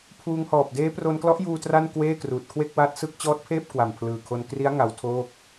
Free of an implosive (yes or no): yes